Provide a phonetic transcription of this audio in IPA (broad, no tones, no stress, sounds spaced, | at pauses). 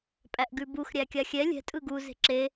pʼ æ ʔ ɡ ʉ b u x ɾʲ æ kʲ a xʲ ɛ lʲ ɛ̤ tʼ ɯ ɡ u z e̤ ǁ e